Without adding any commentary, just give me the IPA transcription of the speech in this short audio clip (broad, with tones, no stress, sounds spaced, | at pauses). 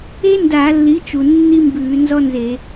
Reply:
e˥ n d a˧˩˧ lː i˩˥ t͡ʃ u˩ nː i˥ m b ʉː˧˩˧ n z ɔ˥ n z e˧˩˧